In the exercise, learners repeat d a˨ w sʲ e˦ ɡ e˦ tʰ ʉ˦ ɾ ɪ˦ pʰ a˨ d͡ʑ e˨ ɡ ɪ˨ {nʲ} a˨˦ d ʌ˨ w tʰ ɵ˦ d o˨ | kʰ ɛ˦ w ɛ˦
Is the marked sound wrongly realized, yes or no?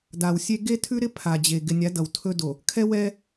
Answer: no